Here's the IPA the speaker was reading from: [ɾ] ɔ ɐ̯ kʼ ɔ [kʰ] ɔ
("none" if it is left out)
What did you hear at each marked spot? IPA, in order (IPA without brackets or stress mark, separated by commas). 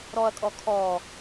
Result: ɾ, kʰ